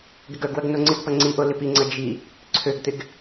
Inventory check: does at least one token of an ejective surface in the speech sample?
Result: no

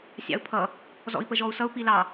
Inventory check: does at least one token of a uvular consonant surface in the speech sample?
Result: no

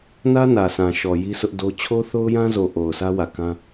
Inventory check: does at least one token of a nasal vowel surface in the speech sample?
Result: yes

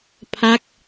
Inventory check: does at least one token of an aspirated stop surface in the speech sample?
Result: yes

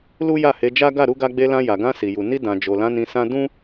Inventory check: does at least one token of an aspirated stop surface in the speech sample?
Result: no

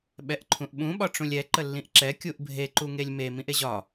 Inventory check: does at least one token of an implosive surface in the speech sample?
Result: yes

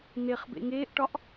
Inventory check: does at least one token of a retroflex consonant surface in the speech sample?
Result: yes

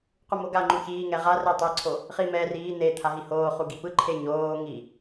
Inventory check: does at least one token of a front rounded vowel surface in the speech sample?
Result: no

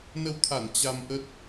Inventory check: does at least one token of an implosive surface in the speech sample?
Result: no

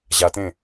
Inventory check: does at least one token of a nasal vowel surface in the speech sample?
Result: yes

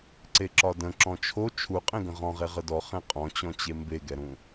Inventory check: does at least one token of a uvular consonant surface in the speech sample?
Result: yes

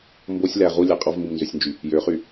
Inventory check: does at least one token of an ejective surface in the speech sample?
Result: yes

